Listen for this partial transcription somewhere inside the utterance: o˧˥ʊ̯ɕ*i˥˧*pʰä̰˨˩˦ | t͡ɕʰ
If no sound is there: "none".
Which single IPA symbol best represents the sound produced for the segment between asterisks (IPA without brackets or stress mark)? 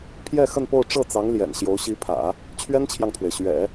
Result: i˧˥